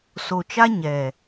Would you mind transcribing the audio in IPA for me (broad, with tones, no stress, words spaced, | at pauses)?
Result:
so˨t͡ʃa˦ ɲɛ˨